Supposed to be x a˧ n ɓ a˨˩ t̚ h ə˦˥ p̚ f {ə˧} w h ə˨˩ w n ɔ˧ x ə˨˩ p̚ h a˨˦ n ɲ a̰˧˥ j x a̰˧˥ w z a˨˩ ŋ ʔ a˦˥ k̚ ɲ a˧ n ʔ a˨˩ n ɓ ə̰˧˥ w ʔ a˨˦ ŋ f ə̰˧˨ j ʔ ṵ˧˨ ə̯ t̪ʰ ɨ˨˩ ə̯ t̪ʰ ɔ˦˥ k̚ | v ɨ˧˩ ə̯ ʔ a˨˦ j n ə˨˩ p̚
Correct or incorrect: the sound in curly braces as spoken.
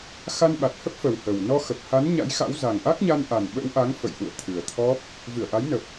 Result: incorrect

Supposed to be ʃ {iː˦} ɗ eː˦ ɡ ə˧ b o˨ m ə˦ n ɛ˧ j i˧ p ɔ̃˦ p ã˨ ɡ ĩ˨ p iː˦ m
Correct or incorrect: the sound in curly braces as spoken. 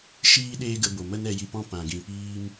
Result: correct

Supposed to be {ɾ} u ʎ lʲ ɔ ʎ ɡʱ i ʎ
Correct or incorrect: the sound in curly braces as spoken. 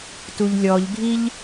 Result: incorrect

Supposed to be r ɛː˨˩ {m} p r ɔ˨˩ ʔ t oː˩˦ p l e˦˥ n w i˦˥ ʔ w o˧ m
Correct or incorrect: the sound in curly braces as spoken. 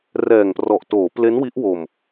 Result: incorrect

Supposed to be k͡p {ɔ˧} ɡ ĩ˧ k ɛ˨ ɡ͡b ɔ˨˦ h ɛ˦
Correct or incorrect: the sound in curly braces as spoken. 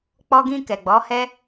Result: correct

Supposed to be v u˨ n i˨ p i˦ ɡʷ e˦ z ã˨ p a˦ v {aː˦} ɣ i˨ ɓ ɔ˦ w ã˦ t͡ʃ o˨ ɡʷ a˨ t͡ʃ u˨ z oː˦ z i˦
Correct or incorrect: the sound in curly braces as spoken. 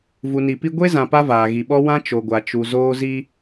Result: incorrect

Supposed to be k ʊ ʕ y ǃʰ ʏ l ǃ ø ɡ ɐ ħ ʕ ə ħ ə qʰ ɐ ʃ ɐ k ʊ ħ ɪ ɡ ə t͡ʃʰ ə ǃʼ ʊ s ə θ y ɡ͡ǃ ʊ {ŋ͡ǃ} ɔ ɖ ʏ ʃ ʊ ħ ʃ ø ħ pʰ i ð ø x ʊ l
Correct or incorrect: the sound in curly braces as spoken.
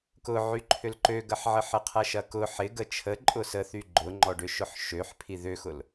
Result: correct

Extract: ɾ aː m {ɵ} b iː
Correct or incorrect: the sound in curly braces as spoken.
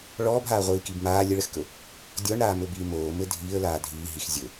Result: correct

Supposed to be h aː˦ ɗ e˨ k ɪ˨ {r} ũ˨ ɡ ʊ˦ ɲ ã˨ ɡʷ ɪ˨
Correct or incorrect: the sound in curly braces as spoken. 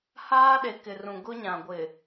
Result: correct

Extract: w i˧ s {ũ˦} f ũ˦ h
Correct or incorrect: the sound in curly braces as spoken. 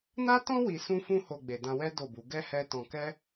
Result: correct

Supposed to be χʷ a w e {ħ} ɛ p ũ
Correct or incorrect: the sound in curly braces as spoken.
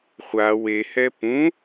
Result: incorrect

